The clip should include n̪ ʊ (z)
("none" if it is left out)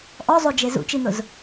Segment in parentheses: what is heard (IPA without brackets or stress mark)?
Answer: z